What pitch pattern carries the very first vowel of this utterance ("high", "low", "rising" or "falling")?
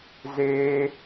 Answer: high